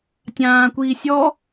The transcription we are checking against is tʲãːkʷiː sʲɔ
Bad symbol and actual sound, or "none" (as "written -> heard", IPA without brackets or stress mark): none